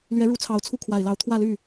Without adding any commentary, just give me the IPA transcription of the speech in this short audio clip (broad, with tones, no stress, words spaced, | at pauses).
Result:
lɥɛ˧˥ɻu˧˥t͡sʰɑ˨˩ʊ̯t͡sʰu˥˩ kʰwa˨˩ɪ̯lɑ˧˥ʊ̯ t̪ʰwä˥˧ly˥˩